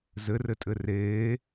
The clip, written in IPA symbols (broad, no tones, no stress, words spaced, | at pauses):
zɘrɘtʼɘ reː